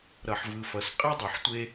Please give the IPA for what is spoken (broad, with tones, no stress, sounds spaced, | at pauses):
ɾ ʌ˨ ħ v ɯ˨ f ʌ˨ s qʼ ɛ˦ dˤ u˨ ħ tʷ e˦